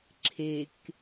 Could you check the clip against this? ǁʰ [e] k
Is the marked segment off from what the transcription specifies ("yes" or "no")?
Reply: no